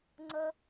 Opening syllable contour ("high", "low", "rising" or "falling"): high